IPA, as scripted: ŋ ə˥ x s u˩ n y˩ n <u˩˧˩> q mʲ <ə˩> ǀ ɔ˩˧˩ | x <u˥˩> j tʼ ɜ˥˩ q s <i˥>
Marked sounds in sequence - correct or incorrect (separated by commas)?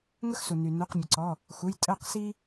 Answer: correct, correct, incorrect, correct